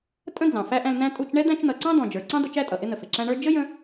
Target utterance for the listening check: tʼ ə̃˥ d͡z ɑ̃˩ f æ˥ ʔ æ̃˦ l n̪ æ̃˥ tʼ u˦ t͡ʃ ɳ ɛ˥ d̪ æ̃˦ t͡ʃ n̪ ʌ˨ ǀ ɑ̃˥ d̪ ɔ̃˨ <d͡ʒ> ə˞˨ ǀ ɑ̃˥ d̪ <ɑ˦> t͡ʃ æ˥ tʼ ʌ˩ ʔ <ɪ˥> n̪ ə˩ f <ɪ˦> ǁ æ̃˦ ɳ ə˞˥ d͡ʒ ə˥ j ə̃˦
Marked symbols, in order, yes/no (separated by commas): yes, no, yes, no